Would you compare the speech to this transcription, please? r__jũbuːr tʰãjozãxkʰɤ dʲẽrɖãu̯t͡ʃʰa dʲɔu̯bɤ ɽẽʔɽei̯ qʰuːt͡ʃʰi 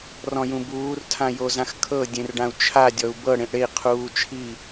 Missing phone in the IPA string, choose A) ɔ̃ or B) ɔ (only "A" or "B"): A